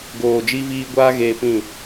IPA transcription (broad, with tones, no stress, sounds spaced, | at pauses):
ɡ oː˨ d͡ʒ i˧ v iː˦ ɡʷ aː˦ ɣ eː˧ p ĩ˦˨